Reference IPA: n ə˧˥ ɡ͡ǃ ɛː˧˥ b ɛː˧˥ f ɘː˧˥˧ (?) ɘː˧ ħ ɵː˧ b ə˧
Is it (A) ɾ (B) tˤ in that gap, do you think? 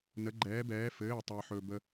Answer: B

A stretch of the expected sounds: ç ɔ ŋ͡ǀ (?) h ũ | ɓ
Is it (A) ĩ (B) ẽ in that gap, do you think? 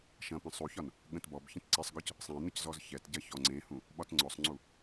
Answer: B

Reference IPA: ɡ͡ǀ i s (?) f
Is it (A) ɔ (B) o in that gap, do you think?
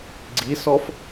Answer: A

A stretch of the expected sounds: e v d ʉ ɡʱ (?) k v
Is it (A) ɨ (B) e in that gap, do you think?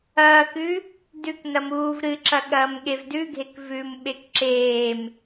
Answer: B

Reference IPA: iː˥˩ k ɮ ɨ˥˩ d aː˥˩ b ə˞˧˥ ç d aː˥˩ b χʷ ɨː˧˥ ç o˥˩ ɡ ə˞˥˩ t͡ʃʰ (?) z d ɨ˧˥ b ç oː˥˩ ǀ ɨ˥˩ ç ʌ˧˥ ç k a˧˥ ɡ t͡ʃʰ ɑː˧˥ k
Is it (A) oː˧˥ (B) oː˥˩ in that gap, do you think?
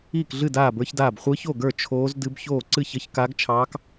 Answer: A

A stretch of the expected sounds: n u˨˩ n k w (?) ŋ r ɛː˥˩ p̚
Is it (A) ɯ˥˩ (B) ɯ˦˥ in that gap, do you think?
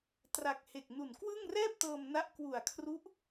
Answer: A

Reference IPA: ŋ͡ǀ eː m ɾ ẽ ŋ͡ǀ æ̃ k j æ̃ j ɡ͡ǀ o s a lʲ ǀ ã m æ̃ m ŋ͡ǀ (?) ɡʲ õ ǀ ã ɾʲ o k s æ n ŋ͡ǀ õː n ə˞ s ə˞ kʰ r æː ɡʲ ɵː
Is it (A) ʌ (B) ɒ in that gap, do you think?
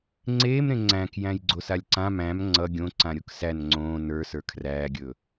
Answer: A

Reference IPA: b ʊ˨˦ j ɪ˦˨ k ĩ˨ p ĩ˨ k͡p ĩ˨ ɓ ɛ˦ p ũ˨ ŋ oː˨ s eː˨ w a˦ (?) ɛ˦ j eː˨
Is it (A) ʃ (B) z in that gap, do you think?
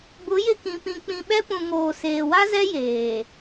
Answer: B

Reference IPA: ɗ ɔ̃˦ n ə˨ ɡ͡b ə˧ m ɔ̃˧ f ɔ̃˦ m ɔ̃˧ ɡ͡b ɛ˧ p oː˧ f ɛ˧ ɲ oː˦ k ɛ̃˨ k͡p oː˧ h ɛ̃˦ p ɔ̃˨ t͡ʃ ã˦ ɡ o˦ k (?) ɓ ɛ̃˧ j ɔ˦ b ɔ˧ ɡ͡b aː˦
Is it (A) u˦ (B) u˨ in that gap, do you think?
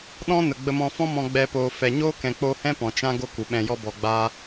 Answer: B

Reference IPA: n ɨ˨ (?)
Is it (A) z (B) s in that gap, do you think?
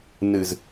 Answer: A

